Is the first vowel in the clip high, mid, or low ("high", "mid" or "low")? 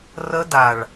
mid